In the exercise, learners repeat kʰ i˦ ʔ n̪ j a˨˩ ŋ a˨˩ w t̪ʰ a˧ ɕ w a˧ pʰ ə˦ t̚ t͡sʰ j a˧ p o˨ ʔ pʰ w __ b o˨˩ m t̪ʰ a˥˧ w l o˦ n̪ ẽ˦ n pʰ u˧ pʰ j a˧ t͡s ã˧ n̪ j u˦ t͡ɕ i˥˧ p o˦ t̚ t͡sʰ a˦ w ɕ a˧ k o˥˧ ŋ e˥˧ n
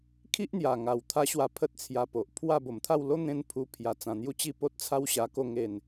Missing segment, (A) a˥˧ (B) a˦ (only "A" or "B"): A